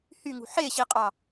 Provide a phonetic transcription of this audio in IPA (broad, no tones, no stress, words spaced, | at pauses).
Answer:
hyŋṳ ħeɕiqʼɑ